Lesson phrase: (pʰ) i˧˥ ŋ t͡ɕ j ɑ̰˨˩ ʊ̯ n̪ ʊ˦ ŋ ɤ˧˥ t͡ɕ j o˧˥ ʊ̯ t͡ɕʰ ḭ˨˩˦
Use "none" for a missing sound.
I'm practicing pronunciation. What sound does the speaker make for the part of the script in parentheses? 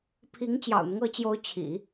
pʰ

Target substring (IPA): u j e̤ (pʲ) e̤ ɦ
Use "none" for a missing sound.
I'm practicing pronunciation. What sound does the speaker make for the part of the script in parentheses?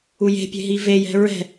pʲ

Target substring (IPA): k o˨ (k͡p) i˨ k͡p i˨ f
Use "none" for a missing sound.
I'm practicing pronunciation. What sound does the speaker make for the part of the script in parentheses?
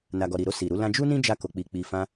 k͡p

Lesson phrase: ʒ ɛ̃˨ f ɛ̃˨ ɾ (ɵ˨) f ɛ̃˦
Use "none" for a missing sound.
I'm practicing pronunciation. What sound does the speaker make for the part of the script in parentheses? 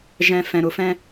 ʊ˨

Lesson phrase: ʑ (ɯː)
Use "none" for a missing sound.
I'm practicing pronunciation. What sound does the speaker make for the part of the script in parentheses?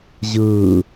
ɯː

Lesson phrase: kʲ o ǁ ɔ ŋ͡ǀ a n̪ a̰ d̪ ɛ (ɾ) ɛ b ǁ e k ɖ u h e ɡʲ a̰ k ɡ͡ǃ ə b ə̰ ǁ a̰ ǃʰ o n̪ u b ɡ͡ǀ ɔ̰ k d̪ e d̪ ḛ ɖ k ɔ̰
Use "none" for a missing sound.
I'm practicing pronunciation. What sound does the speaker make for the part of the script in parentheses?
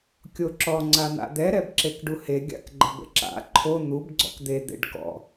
ɾ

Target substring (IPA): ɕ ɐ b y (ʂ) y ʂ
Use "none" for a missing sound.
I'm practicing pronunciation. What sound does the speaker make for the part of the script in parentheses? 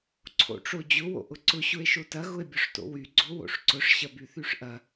θ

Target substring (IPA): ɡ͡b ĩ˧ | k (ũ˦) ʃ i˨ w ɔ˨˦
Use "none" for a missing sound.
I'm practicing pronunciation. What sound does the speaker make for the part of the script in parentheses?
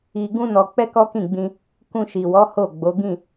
ũ˧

